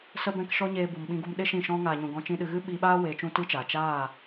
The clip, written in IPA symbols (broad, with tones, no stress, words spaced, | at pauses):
sə˦bɛ̃˦kʃɔ˦ ɲeː˦bu˧mɓĩ˦ɡu˦m ɗe˦ ʃĩ˦˨ʃɔ̃˦ ŋaː˨ɲũ˨ ɡɔ̃˦t͡ʃĩ˦ ɗɨ˧ ɣɨ˦ɓiː˧ɓaː˦ weː˧t͡ʃũ˦tɨ˦t͡ʃa˨ t͡ʃaː˦˨